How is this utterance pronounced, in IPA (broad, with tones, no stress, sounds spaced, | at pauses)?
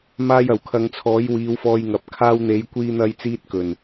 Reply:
m aː˧ j ɐ˨˩ w kʰ ɐ˨˧ ŋ t͡sʰ ɔː˨˥ j w iː˨˧ w f ɔː˧ j ŋ ɐ˨ p̚ kʰ aː˧ w n̪ e˨˧ j kʷ iː˧ n̪ ɐ˧ j t͡s iː˧ t̚ k ɵ˨˩ n